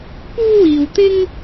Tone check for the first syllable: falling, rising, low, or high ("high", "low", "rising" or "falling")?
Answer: high